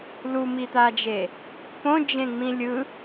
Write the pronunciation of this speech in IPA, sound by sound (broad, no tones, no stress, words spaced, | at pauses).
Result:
lumit̪ad͡ʒe | põd͡ʒẽŋ͡mĩ lʲɯ